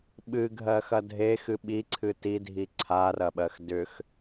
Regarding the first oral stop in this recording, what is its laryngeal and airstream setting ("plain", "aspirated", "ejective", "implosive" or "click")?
implosive